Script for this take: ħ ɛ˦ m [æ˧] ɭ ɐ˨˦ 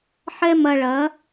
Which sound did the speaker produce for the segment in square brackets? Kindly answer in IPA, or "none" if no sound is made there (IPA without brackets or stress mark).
ɐ˧